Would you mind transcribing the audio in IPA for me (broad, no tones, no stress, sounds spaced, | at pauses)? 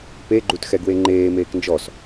p e ɡ͡ǃ u t x ɛ ɡ w e ŋ͡ǃ eː m eː k n d͡ʒ ɔ s